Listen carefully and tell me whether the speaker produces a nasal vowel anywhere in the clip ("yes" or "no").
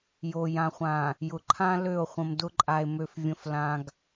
yes